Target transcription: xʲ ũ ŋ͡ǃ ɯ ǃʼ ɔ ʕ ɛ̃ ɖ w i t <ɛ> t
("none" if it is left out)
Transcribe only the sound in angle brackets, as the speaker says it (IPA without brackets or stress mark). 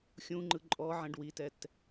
ɛ